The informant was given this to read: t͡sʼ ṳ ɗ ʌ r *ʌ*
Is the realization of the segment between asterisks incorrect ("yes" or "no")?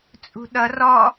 yes